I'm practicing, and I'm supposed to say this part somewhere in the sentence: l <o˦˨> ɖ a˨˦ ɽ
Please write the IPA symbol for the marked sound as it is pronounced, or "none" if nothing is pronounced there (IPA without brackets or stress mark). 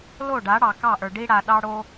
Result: o˦˨